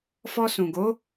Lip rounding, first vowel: rounded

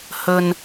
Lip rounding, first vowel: rounded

